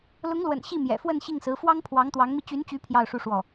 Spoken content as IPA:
lʊ˧˥ŋlwə̰˨˩n ɕi˥˩mjɛ̰˨˩fwə˥˧n ɕi˥˩ŋsɹ̩˧˥ fwɑ˥ŋ pʰwɑ˧˥ŋt̪wɑ˧˥ŋmi˧ t͡ɕy˧˥nt͡ɕy˧˥ pʰjɑ˥˧ʊ̯ʂu˥˧ʂwɔ˥˩

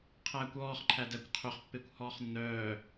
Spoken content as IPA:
qʰæːkʷɔːχ ǃʰædækʷqʰɵχ pːekʷhɔːχnːœː

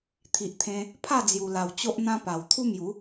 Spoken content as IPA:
t̪ʰi˨ʔt̪ʰẽ˧ | pʰa˥˧ d͡zju˨˩la˨˩w t͡ɕo˦ʔn̪ã˦pa˨˩w t̪ʰu˦mju˨˦

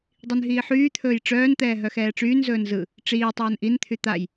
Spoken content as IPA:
dˤinɦiːħyːt̪ʰɵːj ʈ͡ʂœːnt̪ɛː ɦœxɛːʈ͡ʂyːnzɵːn zɯ | ʈ͡ʂiː tˤœːnʔint̪ʰy t̪aj

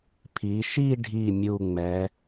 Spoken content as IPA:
pʰi˩˧ ʃi˥˧ɖʱi˧˩ mʲu˧˩ŋ͡mɛ˩˧

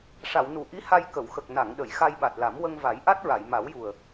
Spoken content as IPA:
ʂa˨˩˨wnu˨˩˨ ʔi˧˥ha˧j kə˨˩˨wxə˨˩k̚ na˨˩˨ŋɗə˨˩˨j xa˧jɓa˨˩t̚la˨˩˦m wə˧ŋva˨˩˦jʔa˦˥t̚ɹa˨˩˨j ma˨˩˦wju˨˩ə̯

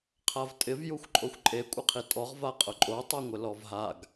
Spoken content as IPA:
qʰavtʼɪv juxʷǃʼoxʷǃʼe kʷʼɪqʰitʼɔʁ vaqʼʊǃʼo tˤɛŋʷɪlɔvɦaɡ

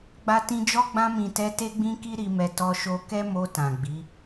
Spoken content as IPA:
ɡ͡ba˧tĩ˧d͡ʒɔ˦ ɡ͡bã˧mĩ˨tɛ˧ te˦ɡ͡bĩ˦ki˦ ɾi˧mɛ˧ tɔ˧ʃo˧ kɛ˦mo˧ tã˨ɡ͡bi˨˦

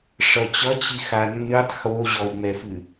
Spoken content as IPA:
ʂʌt͡ɕʌ t͡ɕixanːɨtˤ xoʑɔu̯ŋ͡mɛfɨ

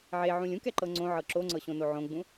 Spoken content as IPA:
ʕeʕũlʲ ũkɛǃɤ ŋ͡ǀõʕɤ ǁoŋ͡ǀɤɕõno ʕõɡ͡bũ

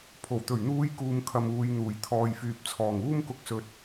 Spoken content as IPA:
pʰo˨˩wt̪ɵ˨˩ɥn̪uː˨˧j kuː˨mkʰɐ˨muː˨jn̪uː˨˩j t̪ʰɔː˨jfyː˨p̚ t͡sʰɔː˨˩ŋuː˧mkʊ˨k̚ sɵ˨t̚

